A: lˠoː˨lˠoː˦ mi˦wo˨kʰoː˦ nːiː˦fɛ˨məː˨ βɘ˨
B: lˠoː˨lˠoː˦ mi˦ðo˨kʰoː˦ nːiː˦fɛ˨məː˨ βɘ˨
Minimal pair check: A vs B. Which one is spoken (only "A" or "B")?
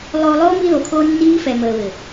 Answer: B